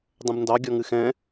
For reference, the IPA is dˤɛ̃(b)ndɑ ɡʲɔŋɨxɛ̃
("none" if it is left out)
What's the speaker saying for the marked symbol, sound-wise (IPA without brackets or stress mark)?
b